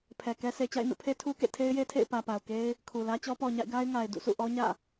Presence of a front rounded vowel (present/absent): absent